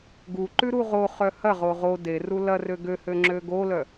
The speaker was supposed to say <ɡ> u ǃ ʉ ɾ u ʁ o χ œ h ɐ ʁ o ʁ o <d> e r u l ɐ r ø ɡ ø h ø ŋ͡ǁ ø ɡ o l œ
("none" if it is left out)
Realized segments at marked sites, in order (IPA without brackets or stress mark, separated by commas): ɡ, d